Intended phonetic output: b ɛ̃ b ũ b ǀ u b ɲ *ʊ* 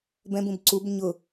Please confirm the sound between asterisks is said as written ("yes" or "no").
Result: yes